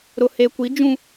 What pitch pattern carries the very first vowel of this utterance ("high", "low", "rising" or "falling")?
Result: low